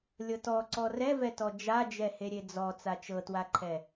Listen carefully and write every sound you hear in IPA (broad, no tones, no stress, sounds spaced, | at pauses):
lʲ ɤ t ɔ ǀ ɔ r ɛ v ɛ t ɔ d͡ʒ a d͡ʒ ɛ h e ɾʲ e d͡z ɔ t͡s a t͡ʃ ɤ t w a ǃʰ ɛ